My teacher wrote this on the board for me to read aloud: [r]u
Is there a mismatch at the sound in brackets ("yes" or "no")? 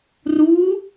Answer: no